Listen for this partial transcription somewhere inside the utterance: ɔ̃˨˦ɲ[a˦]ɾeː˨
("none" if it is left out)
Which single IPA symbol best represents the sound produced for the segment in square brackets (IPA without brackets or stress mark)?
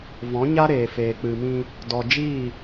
a˦